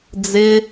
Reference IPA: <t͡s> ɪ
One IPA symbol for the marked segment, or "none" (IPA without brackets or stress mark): d͡z